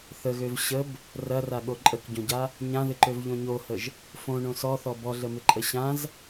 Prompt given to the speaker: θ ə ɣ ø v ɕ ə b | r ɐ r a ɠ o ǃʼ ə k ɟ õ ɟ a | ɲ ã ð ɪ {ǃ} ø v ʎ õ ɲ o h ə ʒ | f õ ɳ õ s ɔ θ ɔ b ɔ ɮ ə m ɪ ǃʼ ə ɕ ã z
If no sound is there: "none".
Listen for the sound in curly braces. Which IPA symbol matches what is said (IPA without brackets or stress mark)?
ǃ